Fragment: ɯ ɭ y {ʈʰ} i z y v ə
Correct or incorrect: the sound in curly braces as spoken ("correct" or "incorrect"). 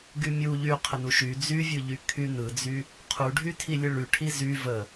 correct